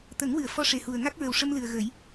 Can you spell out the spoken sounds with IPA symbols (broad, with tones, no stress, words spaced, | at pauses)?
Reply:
t̪ə˨˩˦ŋwɨ˨˩˨ə̯ fɔ˧ʂe˨˩hu˨˩ə̯ ŋa˦˥k̚ɹə˨˩wʂə˧mlɨ˨˩ə̯ ɣə˨˩˦j